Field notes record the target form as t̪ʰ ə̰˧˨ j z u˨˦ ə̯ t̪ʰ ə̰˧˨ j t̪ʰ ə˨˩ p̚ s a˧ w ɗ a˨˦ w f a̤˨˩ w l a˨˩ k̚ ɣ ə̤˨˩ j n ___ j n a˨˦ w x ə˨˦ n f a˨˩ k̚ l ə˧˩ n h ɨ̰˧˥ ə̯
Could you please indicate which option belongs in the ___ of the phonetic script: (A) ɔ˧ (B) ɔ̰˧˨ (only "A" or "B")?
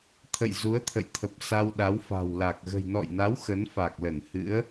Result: B